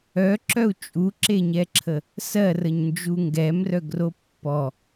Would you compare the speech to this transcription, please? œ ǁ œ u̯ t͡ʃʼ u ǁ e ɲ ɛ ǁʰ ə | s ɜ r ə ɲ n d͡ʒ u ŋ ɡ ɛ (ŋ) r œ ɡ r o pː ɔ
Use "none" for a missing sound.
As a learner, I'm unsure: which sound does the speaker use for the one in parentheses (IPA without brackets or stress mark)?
m